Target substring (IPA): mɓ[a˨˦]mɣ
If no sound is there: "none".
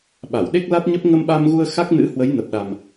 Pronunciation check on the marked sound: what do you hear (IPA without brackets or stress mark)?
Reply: a˧